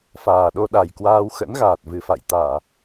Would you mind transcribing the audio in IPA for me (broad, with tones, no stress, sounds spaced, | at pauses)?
f aː˨˩ ɗ o˧ ɗ a˨˩ j k w aː˧ w x ə̰˧˥ n ɣ aː˨˩ t̚ v ɨ˨˩ f a̰˧˨ j t̪ aː˧˩˨